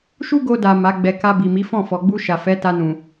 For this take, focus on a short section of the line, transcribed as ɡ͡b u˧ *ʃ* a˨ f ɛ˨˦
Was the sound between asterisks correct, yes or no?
yes